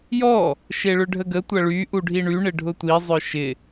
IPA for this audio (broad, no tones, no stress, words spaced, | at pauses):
jɔ | ʃeɭʏɖʱəɡə tʷɐɭy ʔuɖʱiɳy ɳɪɖʱʊtʷi zˤœʃɪ